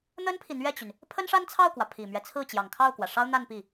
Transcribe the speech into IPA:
n̪ ə˥ n pʰ i˨ n̪ ɥ ɛ˥˩ t͡ɕ y˩ n | pʰ ə˥ n ʂ a˥ n t͡sʰ ɑ˥˩ ʊ̯ k w ä˩ pʰ i˨˩ m ɥ ɛ˦ t͡sʰ ɹ̩˥˩ t͡ɕ j ɑ˨˩ ŋ kʰ ɑ˥˩ ʊ̯ k w ä˩ ʂ ɑ˥ ʊ̯ n̪ a˥˧ n p i˥˩

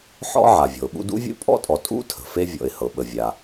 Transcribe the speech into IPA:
ħ ɔ̰˥ ʕ a˩ vʲ ɔ̤˩ ʊ̯ ɓ ṵ˦ d ṵ˥ vʲ ṵ˥ pʼ ɔ̰˥ tʼ ɔ˨ tʼ ṵ˥ tʰ ə̤˩ f e˦ vʲ ɔ̰˨ ɪ̯ h ɤ˩ ɓ ə˨ vʲ a˨

